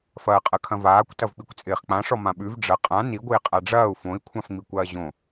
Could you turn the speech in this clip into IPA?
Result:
f ɐː qʼ ɐ kʰ ɐ̃ v aː kʷ t ɐ v k͡p i kʷ t͡sʼ ɪː χ k͡p ã ʂ ɔ m ã ɓ ʉ v ɖ͡ʐ ɐ qʼ ã n i ɡʷ ɪː qʼ a ɖ͡ʐ ɐː u̯ f õ i̯ kʷʰ ã f ŋ͡m i kʷ ɐː ʑ õ

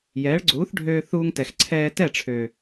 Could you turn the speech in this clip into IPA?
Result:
j ɛː˨˦ ɭ ɡ͡ǀ uː˨˦ θ ɖʱ øː˧ θ uː˧ ŋ t ɛ˨ x ǀʰ ɛː˧ t ɛ˦˨ ʈ͡ʂʰ ø˨

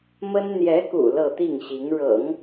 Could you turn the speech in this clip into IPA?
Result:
m ə˥ n n̪ j ɛ˧˥ k ṵ˨˩ l ɤ˥˧ t̪ i˥˩ ŋ ɕ i˧˥ ŋ ɻ ɤ̰˨˩˦ ŋ

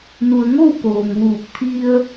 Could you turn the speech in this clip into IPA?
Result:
n u˩ ə̯ ŋ o˥˨ w k oː˩ ŋ ʋ uː˧˩ k̚ t̪ʰ i˧ ə̯

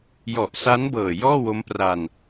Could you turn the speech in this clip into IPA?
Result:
j ɔ˨˩ ʔ s a˦˥ n b ɤː˨˩ j ɔː˥˩ w o˦˥ m p r a˧ n

